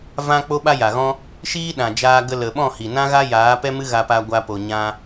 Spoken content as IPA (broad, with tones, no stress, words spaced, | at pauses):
vã˧ k͡po˦ɓa˦ja˨ɣɔ̃˦ | ʃiː˦ɗã˨d͡ʒaː˧ɡə˧ lə˨ɓɔ̃˦˨hi˨ nã˦ɣa˦ jaː˨˦pɛ˦mɨ˦ ɣa˧pa˧ ɡʷa˦po˧ɲã˦